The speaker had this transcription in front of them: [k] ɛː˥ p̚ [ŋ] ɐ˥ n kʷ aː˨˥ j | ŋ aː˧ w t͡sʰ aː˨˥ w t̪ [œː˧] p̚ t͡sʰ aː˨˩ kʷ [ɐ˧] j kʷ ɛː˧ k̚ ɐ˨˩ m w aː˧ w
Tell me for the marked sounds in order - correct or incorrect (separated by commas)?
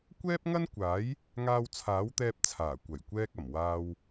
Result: incorrect, correct, incorrect, incorrect